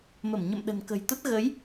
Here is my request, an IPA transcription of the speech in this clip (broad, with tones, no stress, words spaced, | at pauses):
mə˧˩mɲə̰˧˨m ɗə̤˨˩nkə̤˨˩jt̪ə˦˥t̚ ɣə˨˦j